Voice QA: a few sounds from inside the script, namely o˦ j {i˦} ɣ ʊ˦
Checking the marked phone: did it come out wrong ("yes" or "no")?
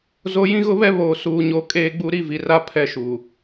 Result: yes